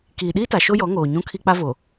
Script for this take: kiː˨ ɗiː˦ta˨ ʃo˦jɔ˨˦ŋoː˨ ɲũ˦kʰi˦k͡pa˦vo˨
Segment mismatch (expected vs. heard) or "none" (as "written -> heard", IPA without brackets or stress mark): none